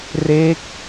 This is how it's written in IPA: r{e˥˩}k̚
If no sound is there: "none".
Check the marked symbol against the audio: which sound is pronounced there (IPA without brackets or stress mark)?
e˦˥